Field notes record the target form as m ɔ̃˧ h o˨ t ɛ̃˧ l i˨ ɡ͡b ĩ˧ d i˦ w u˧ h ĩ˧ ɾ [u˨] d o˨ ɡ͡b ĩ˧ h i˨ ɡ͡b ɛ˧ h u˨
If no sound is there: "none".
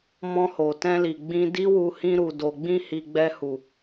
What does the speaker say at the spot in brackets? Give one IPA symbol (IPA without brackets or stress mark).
u˨